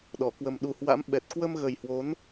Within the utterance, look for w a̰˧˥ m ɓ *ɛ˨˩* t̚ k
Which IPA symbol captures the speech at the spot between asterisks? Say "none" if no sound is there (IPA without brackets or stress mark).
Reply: ɛ˨˩